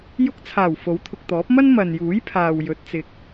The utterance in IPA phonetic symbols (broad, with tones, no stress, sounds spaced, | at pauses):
j ʊ˧ k̚ t͡sʰ aː˨˩ w f o˨˥ w t̪ʰ ʊ˨ k̚ t̪ ɔː˨˥ p̚ m ɐ˥ n m ɐ˨ n j uː˨˥ j pʰ aː˨ w j ɵ˨˥ t̚ t͡s ɪ˨ k̚